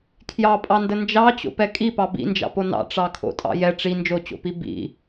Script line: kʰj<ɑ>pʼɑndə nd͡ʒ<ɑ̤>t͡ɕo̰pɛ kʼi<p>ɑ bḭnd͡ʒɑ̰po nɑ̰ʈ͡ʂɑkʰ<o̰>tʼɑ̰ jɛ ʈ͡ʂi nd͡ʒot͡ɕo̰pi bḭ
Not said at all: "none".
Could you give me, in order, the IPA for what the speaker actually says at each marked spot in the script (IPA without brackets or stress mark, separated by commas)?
ɑ, ɑ, p, o̰